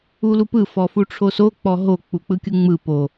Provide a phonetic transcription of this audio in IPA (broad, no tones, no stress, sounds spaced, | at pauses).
u l u p ɯ f ɔ f u ʈ͡ʂʰ o s o k͡p ɔ ɦ o k͡p u k͡p ɯ kʲ ɯ ŋ͡m ɯ p o